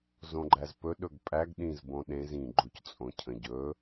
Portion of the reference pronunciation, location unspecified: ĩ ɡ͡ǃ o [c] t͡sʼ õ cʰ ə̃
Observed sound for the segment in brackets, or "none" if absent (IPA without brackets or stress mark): c